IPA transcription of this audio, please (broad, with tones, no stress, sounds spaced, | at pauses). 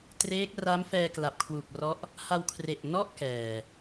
t r eː˦˥ k̚ r a˦˥ m f ɛː˧ k l a˨˩ p̚ kʰ w u˨˩ k̚ r ɔ˦˥ ʔ | h a˧ w kʰ r e˨˩ ʔ n ɔ˥˩ ʔ k ɛː˨˩